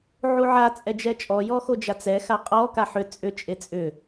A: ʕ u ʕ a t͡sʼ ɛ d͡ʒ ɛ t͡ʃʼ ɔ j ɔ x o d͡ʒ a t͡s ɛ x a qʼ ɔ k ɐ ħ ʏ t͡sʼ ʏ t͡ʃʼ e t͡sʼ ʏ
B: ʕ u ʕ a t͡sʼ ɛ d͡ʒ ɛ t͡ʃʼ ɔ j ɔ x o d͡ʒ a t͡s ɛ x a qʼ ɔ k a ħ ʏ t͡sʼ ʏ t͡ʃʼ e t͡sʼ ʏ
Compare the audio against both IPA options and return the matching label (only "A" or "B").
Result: B